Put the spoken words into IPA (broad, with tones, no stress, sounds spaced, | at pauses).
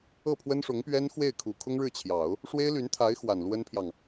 ɤ˥˩ pʰ w ə˥ n ʂ ʊ˧˥ ŋ p ɥ ɛ˥ n x w e˥˩ ɪ̯ kʰ u˨˩ kʰ ʊ˥ ŋ ɻ ɻ̩˥˩ t͡ɕʰ j ɑ˨˩˦ ʊ̯ | ʂ w e˥ ɪ̯ l y˧˥ n t̪ʰ a˧˥ ɪ̯ x w a˨˩ n l w ə˥ n pʰ j ɑ˨ ŋ